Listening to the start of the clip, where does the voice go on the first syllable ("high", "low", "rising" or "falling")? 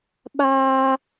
high